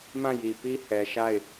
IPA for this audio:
m ã˦˨ j i˨ p i˦ h ɛ˨ ʃ a˦˨ ɪ̯

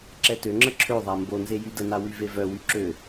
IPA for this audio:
ǁ ɛ t ø ŋ͡ǁ ə ǁʰ ø ðˤ a m b o n z e j y d ə n a w y v e v œ w y ǁ ø

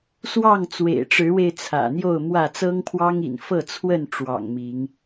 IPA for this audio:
s w ɑ˥˨ ŋ t͡s w ḛ˨˩ ɪ̯ ʈ͡ʂ ɻ̩˨˦ w e˧ ɪ̯ t͡sʰ ä̰˨˩ n̪ j o˥˨ ʊ̯ m w ä˥˨ t͡s ɤ˦ ŋ pʰ w ɑ˦ ŋ ḭ˨˩ n f ɤ˥˨ t͡sʰ w ə˥˨ n ʈ͡ʂ w ɑ̰˨˩ ŋ m i˨˦ ŋ

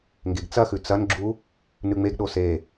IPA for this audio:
ŋ ɡ e ɡ t͡s ɐ x ʉ t͡s ɐ n ɡ͡ǁ u | n ʉ ŋ͡m e ɡ ɗ o s e

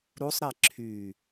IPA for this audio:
ɾ u sˤ ɾ ɛ ǁʰ y

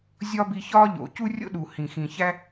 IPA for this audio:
zʲ ɒ˦ b i˧ ç ɒ˦ ʎ o̰˨ c u˦ rʲ o̰˦ ɗ u˨ h ĩ˨ x ĩ˨ ç æ˦

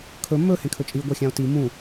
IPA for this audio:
kʰ ɵ m ɵ h ẽ kʰ ɵ t͡ʃʼ i ɡʷ ɑ xʲ ã o̯ t i m ũ

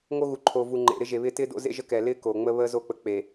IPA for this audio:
ŋ o˦ ɣ u˨ ǃʰ oː˨ v u˨ ŋ͡ǃ ḛ˨ ɾ ɪ˦ ʒ e˨ β ɪː˦ t ɪː˦ d o̰˦ z ḛ˦ ʒ ə˦ k ɛː˨ l ɪː˦ k oː˨ ŋ͡m ə˦ β əː˦ z o˦˨ k͡p ə˨ k͡p e˨

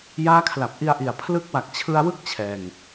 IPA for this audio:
j aː˦˥ kʰ l a˨˩ p̚ ʔ i˧ a̯ ʔ i˨˩ a̯ pʰ l ɯ˦˥ k̚ w a˨˩ k̚ t͡ɕʰ ɯ˧ a̯ w ɯ˦˥ k̚ t͡ɕʰ ɛː˧ ŋ

